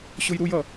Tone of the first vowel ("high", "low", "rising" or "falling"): high